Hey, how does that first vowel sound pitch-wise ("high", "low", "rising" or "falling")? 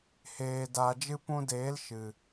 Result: low